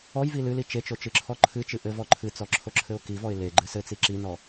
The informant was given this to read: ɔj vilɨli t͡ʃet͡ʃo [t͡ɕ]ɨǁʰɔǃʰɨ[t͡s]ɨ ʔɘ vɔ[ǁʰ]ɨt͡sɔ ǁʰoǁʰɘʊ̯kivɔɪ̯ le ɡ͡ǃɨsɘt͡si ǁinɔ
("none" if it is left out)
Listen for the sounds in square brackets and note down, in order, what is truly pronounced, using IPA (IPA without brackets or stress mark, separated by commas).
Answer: t͡ʃ, t͡ʃ, ǃʰ